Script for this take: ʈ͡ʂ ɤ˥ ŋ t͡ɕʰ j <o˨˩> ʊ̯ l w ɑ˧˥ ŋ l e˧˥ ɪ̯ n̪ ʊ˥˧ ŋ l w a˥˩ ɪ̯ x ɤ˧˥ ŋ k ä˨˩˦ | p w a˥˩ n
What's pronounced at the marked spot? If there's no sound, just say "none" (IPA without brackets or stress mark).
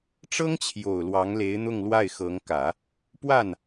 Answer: o˨˩